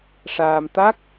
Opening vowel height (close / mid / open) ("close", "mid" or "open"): open